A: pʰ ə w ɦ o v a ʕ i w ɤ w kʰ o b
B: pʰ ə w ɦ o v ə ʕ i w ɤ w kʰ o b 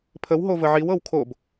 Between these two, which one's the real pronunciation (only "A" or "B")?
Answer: B